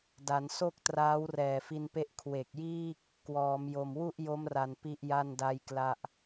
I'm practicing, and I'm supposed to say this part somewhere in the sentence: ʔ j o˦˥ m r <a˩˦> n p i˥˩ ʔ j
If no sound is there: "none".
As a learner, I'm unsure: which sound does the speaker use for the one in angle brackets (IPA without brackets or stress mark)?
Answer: a˨˩